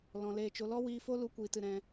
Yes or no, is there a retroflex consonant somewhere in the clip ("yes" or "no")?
no